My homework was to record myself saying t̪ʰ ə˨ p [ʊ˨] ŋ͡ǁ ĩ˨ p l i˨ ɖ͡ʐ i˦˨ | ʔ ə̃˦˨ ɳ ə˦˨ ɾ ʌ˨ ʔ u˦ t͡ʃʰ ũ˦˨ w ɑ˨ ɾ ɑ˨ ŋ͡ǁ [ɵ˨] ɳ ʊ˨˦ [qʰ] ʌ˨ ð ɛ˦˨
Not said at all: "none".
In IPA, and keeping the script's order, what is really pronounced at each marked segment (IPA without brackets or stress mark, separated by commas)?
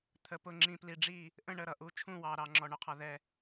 ʊ˨, ɔ˨, qʰ